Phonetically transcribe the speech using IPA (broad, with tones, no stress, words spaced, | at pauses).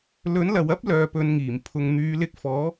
lɵ˨˥nlɐ˨wɐ˥p̚lœː˨ pɵ˧nŋiː˨˩m pʰʊ˨ŋn̪yː˨˧lɪ˧k̚fɔː˨˥